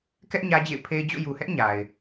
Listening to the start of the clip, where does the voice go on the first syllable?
high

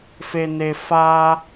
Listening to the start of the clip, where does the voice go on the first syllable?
high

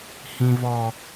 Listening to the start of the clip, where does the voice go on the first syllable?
high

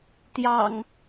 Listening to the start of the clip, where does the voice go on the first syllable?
low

